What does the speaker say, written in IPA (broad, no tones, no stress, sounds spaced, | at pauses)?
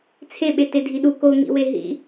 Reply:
t͡sʰ e ɓ e t e dʱ i ɗ u k o ŋ ḭ w e ɦ ḭ